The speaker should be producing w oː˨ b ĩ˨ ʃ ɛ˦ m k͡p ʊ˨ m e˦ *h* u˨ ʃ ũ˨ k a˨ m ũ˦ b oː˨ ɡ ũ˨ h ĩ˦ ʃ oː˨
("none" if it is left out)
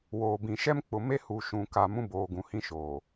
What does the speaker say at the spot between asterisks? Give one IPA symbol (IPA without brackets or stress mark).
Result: h